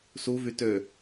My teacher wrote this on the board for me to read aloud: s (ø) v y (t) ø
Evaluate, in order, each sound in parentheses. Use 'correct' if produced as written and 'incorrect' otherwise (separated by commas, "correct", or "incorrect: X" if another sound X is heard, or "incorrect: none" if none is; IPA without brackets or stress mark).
incorrect: u, correct